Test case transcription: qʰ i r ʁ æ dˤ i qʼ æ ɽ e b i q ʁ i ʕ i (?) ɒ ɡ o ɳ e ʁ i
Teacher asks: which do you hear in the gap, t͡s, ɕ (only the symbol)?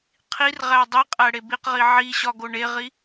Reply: ɕ